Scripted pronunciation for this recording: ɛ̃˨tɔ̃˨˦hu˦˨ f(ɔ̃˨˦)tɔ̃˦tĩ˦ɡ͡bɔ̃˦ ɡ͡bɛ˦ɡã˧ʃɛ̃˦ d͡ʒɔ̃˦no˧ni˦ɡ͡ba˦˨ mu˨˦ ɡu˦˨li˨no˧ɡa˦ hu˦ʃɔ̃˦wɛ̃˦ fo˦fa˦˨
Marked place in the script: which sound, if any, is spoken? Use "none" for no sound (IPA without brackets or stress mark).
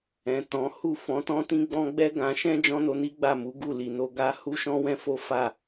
ɔ̃˨˦